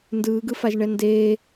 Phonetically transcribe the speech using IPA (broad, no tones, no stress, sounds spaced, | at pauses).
n d ɯː ɡ ɯ f a ʒ ɳ ɛ n d eː